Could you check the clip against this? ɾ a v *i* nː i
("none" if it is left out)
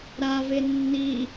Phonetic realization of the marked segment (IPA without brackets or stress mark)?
e